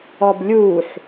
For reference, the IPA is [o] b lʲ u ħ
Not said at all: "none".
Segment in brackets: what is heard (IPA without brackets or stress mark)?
ɔ